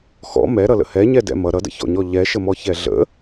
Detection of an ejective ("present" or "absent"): absent